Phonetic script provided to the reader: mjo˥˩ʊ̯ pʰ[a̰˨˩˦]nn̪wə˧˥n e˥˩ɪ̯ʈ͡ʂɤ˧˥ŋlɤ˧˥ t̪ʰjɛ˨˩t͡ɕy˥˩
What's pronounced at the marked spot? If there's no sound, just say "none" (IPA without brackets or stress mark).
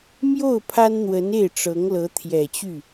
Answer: a˥